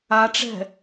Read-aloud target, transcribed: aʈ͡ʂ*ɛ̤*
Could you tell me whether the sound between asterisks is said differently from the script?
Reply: no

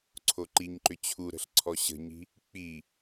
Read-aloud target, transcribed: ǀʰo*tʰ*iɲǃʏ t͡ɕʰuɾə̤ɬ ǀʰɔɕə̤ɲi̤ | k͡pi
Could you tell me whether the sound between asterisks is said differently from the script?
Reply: yes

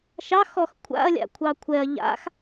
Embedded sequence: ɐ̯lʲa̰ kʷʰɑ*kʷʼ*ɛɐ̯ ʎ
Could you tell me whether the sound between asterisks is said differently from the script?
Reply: yes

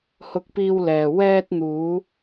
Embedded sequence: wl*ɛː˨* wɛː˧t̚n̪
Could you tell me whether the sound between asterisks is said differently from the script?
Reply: no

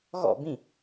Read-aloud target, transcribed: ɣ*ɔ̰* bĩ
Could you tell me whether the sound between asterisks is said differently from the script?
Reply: no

